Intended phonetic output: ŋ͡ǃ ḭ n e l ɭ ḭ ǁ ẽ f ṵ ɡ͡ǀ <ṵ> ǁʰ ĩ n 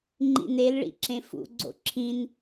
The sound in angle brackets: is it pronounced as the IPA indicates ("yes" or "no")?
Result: no